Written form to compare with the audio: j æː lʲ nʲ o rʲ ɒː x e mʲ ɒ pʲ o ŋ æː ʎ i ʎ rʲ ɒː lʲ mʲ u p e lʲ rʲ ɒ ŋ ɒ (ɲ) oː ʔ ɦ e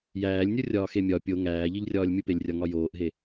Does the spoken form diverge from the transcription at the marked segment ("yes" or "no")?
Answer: yes